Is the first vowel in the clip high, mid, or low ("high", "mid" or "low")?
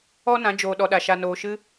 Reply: mid